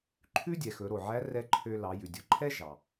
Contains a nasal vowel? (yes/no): no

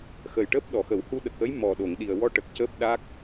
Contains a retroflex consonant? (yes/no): yes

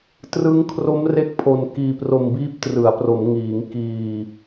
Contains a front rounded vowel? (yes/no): no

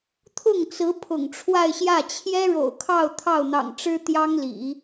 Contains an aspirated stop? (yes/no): yes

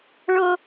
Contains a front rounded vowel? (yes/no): no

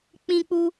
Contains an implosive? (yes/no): no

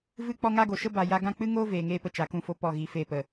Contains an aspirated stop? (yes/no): no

